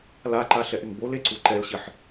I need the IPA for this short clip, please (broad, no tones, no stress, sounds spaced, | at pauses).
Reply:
l a ǃ a ɬ ɛ ʔ ɪ ŋ b o l e ǀ u ǃ ɛ l ɕ ɪ ħ